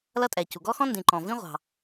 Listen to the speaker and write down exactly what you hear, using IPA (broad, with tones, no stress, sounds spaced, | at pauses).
l ʌ˥ tʼ ɛ˩ c u˩ ɡ ɔ˥ x ɔ̃˥ n d ĩ˩ ǃ ɔ̃˩ v ĩ˥ ʁʷ ɑ̤˩